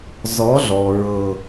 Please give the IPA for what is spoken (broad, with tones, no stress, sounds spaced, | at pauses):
z ɔ˨˦ ɮ ɔ˨ ɹ ɤ˨